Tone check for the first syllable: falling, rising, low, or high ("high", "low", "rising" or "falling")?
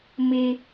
high